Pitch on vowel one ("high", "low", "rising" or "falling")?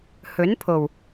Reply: rising